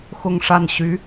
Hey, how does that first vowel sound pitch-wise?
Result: falling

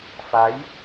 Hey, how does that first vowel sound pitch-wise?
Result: rising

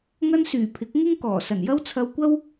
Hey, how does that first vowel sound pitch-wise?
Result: high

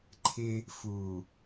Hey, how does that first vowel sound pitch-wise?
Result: high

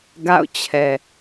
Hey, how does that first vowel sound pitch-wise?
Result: falling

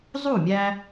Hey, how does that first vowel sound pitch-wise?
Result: falling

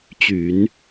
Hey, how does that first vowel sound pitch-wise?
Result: low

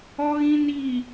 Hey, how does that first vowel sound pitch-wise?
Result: high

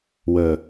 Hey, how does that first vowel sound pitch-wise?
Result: low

